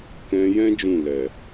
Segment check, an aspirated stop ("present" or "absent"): absent